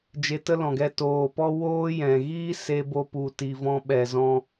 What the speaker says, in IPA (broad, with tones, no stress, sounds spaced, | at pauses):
d͡ʒ e˧ t ə˦ l ɔ̃˨ ɡ ɛ˧ t oː˨ p ɔ˦ w oː˦ j ɛ̃˨ ɣ iː˦ s e˧ b o˧ p u˨ t i˨ v ɔ̃˧ ɓ ɛ˨ z ɔ̃˧